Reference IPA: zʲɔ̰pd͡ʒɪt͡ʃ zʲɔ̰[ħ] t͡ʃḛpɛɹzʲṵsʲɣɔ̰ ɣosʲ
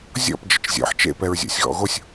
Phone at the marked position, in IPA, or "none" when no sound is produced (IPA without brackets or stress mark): ħ